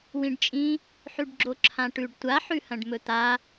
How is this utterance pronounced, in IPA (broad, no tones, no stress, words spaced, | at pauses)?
wĩɖt͡ʃʼĩ | ħʉɖɡ͡ǁoǁʰãʈʉɖ tʷaħʉhɐ̃ɖ mɵt̪a